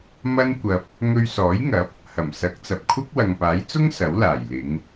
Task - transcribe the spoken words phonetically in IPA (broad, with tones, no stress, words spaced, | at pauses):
mɐ˥nkʷɐ˧p̚ | ŋɵ˧ɥsɔː˨˥jŋɐ˨˥p̚ | hɐ˨˩msɐ˨˥k̚t͡sɐ˨p̚kʷʰɐ˥k̚ wɐ˨ŋpaː˨˥jt͡sʊ˥ŋ sɐ˨˥wlaː˨˩j lɪ˨˧ŋ